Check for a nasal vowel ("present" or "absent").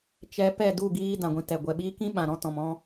present